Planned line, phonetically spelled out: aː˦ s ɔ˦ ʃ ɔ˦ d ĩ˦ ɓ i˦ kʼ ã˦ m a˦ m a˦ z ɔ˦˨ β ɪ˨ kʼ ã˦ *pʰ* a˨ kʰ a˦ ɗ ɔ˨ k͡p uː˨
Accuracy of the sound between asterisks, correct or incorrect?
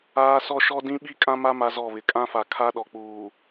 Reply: incorrect